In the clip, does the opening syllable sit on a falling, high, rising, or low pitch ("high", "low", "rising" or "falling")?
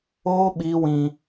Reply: high